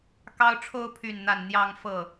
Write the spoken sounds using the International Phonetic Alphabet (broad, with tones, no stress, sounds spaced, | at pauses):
k ɑ˦ ʊ̯ ʈ͡ʂʰ o˦ ʊ̯ pʰ y˥˨ n n̪ a˥˨ n n̪ j ɑ˦ ŋ f ɤ˥˨